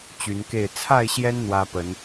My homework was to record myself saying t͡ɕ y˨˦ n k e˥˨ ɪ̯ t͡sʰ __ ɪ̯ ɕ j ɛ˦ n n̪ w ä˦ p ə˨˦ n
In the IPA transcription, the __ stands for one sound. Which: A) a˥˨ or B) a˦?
A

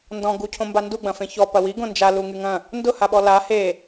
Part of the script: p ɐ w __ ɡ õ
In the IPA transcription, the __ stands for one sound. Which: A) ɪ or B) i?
B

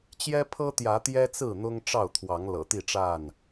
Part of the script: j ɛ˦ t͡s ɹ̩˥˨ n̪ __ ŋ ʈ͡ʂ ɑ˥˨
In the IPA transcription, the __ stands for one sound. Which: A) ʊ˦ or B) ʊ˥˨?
A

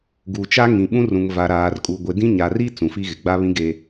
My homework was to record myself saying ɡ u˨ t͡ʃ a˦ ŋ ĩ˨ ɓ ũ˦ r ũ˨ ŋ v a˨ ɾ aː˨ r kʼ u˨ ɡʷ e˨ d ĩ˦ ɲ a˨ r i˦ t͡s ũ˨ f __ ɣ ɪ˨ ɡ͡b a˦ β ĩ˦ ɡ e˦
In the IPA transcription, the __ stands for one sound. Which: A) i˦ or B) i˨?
A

